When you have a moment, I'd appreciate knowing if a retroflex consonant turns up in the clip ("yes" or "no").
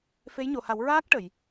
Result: yes